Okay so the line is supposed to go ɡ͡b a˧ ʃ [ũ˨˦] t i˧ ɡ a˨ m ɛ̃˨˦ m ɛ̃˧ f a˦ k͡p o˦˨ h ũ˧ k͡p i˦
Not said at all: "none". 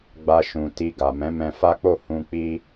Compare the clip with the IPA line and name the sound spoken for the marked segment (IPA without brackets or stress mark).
ũ˨